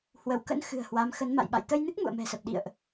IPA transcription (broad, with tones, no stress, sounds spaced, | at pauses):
h w ə˧˩ w k ə̰˧˥ n x ɨ̤˨˩ ə̯ h w a˨˦ m x ə˨˦ n m a̰˧˨ j ɓ a̰˧˨ j t̪ ə˧ j n ɨ˦˥ k̚ m ṵ˧˨ ə̯ m ɛ̤˨˩ s ə˨˩ p̚ ɗ ḭ˧˨ ə̯ ʔ